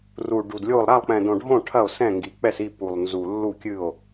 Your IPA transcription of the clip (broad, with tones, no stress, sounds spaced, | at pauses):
r u˨˩ ɖ u˨˩ d lʲ o˥˩ lˠ ɾ a˥˩ lˠ k͡p ɛ̃˨˩ d õ˨˩ ɖʱ õ˥˩ ʈʰ ɐ˥˩ o̯ s ɛ̃˥˩ ŋ ɡ i˨˩ k͡p ɛ˥˩ s i˥˩ p u˨˩ lˠ n z u˨˩ lː u˥˩ kʲ ɨ˥˩ o̯